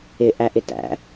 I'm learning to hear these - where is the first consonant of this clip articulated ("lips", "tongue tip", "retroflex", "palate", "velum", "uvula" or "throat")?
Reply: throat